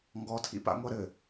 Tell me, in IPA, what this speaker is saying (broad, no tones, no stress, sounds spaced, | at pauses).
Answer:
ŋ ɡ ɔ tʰ ḭ p a̰ ŋʷ ɐ ɾ ɘ